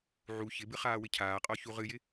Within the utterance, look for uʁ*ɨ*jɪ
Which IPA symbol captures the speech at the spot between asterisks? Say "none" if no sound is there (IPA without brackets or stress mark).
ɨ